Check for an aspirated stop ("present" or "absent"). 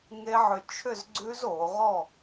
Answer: present